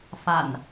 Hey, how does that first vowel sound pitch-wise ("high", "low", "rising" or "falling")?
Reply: low